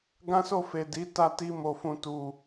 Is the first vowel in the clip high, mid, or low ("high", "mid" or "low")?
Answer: low